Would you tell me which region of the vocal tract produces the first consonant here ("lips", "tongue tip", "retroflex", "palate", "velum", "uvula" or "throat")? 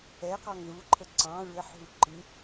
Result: uvula